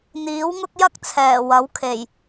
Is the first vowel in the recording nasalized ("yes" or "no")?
no